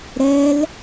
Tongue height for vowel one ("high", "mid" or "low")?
mid